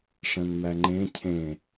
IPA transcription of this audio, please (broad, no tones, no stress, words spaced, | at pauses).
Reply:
ʂə̃nmæŋ͡ǃẽ cʰẽ